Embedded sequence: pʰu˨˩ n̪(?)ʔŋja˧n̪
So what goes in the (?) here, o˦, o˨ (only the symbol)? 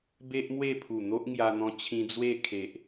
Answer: o˦